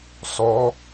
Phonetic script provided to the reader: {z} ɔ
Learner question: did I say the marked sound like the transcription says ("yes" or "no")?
no